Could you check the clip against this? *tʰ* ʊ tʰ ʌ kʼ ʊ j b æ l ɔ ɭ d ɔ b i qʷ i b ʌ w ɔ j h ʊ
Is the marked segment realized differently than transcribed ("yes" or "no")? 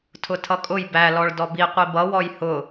no